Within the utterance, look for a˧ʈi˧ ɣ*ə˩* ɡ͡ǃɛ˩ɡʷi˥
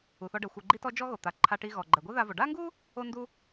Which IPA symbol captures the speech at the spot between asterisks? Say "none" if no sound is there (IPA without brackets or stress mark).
ɔ˩